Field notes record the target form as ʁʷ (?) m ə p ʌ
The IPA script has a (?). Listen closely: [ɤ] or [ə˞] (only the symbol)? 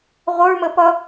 ə˞